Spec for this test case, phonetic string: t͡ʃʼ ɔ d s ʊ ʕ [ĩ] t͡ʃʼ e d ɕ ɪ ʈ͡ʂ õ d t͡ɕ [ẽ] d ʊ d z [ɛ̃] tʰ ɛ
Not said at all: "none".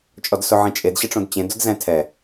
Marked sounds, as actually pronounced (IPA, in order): ĩ, ẽ, ɛ̃

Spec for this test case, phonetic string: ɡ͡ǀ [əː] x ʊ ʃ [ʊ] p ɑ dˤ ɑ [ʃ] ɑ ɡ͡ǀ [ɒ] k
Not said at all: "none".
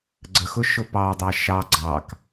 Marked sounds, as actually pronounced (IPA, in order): ə, ʊ, ʃ, ɑ

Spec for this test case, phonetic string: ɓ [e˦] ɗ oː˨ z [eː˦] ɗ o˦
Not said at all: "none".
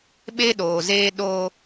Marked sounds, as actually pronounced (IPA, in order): e˦, eː˦

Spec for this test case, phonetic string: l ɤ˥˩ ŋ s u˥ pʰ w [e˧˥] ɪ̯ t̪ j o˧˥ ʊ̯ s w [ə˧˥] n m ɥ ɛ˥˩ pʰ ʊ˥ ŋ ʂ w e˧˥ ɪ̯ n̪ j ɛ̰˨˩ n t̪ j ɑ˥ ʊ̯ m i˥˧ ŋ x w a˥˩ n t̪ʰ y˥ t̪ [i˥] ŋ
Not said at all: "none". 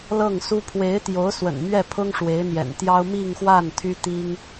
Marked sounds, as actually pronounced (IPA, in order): e˧˥, ə̰˨˩, i˥

